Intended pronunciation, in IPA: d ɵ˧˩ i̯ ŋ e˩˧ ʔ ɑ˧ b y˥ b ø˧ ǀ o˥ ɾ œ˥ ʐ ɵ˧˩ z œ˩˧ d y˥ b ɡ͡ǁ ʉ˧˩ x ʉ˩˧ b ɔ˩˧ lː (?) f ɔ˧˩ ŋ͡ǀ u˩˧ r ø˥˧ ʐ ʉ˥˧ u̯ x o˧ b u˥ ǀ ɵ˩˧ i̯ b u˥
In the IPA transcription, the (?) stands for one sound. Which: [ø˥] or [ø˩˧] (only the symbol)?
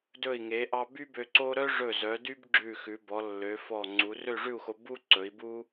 ø˩˧